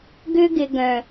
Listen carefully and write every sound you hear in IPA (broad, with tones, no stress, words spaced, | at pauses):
ɡʏ˧ɡɪ˨ ɡœ̃˨